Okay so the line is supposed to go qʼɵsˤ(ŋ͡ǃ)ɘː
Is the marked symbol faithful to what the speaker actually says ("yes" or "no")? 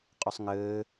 no